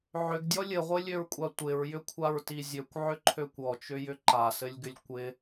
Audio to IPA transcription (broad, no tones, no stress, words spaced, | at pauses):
ʕʏɡdʲɔ lʲɘʁʷɘlʲøɹkʷʼa tʷɪɹjʏkʷʰaɹti zʲøkʷʕʏǃʰøkʷ ɔt͡ʃʏjʏ ǃasɘlʲɡʏlʲ kʷɪ